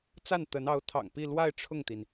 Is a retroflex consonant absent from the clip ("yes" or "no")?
no